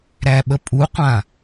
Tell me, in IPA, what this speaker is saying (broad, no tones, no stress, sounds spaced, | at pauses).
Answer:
ɾ æ ɓ ə pʼ u qʷ ã